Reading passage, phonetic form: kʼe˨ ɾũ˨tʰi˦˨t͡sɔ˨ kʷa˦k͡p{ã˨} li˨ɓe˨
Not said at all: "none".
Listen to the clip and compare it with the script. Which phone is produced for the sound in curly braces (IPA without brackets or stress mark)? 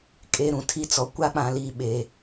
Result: ã˨